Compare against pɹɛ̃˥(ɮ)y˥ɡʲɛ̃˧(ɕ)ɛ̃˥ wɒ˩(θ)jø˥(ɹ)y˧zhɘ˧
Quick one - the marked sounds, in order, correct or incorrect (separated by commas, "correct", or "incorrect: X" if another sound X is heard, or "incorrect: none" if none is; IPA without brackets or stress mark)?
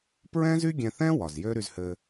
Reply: incorrect: z, incorrect: θ, incorrect: z, incorrect: ɾ